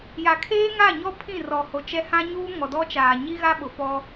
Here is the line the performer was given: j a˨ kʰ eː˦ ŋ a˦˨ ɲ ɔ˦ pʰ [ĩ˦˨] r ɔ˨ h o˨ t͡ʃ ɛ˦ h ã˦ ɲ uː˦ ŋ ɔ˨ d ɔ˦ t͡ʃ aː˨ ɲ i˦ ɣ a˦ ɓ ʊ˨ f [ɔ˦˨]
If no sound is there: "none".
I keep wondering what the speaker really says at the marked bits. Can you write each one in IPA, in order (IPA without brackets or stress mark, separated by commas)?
ĩ˦˨, ɔ˦